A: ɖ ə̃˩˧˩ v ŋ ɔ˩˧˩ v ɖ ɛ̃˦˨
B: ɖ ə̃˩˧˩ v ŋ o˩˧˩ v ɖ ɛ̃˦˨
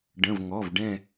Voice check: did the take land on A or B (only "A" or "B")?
A